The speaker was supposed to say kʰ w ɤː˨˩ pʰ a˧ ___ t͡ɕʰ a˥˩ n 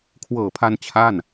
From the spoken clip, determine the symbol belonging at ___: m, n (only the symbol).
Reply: n